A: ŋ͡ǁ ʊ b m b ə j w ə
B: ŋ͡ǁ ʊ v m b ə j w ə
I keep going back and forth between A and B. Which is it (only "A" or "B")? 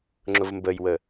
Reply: B